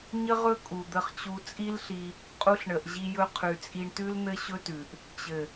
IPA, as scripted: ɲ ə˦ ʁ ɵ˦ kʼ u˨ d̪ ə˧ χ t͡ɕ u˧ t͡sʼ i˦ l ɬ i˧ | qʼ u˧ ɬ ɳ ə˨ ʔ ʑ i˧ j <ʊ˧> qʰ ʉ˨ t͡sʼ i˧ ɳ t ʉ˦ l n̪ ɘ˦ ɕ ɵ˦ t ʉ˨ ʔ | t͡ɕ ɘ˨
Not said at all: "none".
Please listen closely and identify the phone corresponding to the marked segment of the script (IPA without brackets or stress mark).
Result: ɵ˧